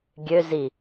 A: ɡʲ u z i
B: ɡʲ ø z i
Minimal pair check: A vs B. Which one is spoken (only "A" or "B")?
B